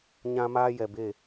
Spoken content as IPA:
ɲ ã˦ m aː˦ j ɛ˨ b eː˦˨

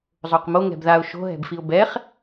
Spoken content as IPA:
zˤ o q m o ŋ ɛ̤ b ð a ʊ̯ ʃ o̤ ɦ ɛ̤ b f i ʊ̯ b ɛ χ

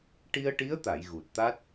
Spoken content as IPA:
ʈ i˧ ə̯ ʈ i˧˥ ə̯ t̪ a˨˩˨ j ɣ u˨˩ t̚ t̪ a˦˥ t̚

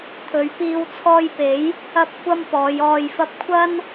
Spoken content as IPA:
t̪ʰ ɵ˨˧ ɥ p iː˧ w t͡sʰ ɔː˧ j p e˨˥ j | ɐ˥ p̚ kʷ ɐ˥ m p ɔː˨˧ j ɔː˨ j f ɐ˧ p̚ kʷʰ ɐ˥ n

